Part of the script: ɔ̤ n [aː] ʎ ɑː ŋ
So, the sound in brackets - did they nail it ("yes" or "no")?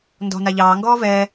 no